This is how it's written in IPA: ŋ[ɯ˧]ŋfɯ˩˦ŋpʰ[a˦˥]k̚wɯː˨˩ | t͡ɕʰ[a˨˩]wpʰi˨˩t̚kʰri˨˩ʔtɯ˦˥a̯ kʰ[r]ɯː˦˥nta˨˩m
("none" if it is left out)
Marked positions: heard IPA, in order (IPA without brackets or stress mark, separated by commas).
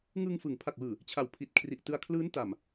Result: ɯ˧, a˨˩, a˨˩, l